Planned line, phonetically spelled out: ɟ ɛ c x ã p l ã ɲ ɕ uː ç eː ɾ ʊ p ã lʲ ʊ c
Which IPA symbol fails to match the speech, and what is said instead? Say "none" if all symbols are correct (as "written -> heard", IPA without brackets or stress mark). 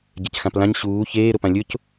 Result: none